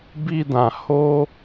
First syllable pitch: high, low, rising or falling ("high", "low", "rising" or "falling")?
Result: high